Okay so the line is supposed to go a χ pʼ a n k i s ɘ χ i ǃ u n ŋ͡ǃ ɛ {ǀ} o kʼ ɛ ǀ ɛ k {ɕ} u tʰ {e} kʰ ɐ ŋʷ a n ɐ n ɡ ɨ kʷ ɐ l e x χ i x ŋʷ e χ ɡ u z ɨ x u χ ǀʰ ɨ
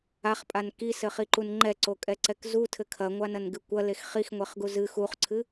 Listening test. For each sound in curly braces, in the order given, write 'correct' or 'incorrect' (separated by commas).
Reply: correct, incorrect, incorrect